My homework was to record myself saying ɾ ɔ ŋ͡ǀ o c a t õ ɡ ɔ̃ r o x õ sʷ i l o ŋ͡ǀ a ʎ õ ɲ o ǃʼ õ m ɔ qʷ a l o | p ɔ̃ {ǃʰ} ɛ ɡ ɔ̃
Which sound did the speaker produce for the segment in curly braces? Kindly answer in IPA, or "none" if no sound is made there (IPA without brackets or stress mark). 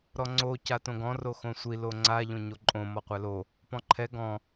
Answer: ǃʰ